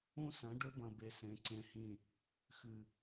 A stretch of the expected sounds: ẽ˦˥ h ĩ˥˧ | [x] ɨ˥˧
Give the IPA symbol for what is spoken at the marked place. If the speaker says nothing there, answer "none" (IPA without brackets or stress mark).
x